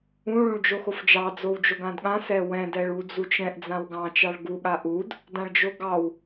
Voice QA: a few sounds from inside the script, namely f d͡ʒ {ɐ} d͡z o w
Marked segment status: incorrect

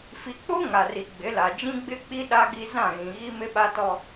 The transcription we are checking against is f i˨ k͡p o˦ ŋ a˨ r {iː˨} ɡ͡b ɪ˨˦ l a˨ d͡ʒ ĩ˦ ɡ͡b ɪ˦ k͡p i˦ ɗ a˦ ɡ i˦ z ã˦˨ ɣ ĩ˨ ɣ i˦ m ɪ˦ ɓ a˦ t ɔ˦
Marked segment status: incorrect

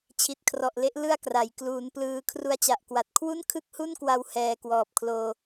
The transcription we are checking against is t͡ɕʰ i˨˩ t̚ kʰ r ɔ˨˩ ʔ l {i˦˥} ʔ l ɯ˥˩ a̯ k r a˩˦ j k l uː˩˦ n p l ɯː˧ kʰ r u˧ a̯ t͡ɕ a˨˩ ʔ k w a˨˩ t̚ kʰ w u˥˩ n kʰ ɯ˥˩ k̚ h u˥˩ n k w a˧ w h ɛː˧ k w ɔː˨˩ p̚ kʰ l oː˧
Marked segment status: incorrect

